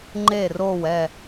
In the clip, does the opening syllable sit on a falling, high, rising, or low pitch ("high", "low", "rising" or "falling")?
falling